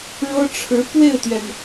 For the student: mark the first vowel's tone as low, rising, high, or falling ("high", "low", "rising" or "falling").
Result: high